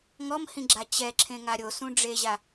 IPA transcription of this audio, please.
ŋ ɔ m h ĩ ɡ͡ǁ a t͡ɕ ɛ ǁʰ ẽ ŋ a ɾʲ o s ũ ɖ͡ʐ e ʑ a

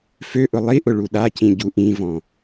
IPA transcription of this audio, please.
f ø ʔ ʊ lˠ i ʔ ʊ ɭ u ɗ a c ĩ ɟ u ʔ ĩ v ɔ̃

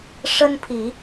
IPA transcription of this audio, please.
ʂ ə˦ n pʰ i˨˦

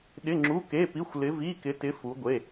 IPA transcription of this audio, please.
ɗ ɪ˧˥˧ ŋ͡ǁ u˧˥˧ k e˧˥˧ p i˧˥˧ xʷ l ɪ˧˥ v i˧˥˧ k ɪ˧˥ t ɪ˧˥ f u˧˥ ɡʷ e˧˥˧

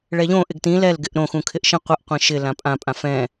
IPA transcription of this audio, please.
ɭ ɛ ʎ õ ʔ ɪ ɡ t ĩ l ɛ l ɡ ɪ ʔ ɾ õ x ũ kʰ ɪ ʔ ʃ ĩ qʷ ɪ ʔ qʷ ĩ ʃ ɪ l ã pʼ ã pʼ ã f ɛ̃

